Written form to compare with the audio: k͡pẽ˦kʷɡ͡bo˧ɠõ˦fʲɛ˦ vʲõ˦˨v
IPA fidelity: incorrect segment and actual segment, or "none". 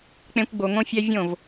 ɠ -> ŋ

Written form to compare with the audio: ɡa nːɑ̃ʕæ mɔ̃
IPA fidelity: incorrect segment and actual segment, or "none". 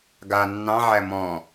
none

